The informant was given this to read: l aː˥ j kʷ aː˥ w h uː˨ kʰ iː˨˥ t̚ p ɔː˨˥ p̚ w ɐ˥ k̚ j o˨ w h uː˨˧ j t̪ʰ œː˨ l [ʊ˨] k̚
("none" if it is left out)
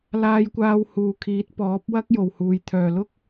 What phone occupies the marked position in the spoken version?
ʊ˥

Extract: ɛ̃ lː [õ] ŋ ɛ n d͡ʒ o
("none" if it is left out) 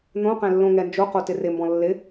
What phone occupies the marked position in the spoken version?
õ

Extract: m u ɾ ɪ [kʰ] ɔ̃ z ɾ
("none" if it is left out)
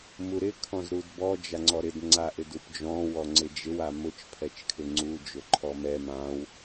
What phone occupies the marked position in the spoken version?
kʰ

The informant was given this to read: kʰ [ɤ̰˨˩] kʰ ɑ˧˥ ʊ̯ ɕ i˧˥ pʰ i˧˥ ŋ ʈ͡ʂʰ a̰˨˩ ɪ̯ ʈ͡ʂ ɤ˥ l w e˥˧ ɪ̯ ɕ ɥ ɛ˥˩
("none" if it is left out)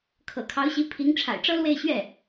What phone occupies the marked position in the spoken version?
ɤ̰˨˩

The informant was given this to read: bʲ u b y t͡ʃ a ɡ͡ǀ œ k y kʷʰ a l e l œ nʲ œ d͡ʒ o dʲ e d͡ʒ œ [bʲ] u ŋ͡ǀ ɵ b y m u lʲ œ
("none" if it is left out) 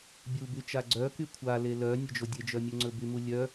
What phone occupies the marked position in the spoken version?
mʲ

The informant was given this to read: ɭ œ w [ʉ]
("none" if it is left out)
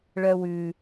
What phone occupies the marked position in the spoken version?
ʉ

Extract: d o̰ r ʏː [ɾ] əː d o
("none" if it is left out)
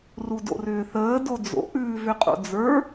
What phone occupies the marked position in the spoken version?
θ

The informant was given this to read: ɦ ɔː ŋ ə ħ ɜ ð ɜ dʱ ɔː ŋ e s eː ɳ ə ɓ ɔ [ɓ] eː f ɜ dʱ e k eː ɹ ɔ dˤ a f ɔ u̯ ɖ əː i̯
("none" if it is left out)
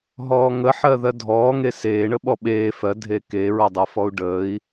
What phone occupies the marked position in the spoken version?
ɓ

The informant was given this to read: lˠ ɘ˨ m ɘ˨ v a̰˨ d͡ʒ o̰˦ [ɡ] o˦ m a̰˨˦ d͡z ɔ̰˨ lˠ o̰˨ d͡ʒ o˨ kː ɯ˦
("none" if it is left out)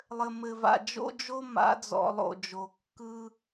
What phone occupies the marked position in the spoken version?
d͡ʒ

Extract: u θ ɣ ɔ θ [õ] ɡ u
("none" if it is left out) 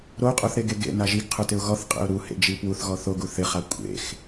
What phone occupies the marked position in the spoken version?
o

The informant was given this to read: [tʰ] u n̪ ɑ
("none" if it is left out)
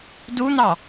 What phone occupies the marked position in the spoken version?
d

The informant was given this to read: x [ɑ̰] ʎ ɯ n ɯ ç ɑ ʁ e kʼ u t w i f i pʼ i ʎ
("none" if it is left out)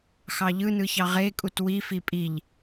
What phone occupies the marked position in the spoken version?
ɑ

